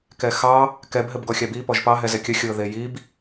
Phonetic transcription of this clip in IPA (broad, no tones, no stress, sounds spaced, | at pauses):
k ɛ x ɑ | k ɛ b ɦ ɘ b ɡ ɔ xʲ a b i p ɔ ʒ p ɑ ɦ ɛ z ɛ kʲ ə xʲ ɤ ð e j i b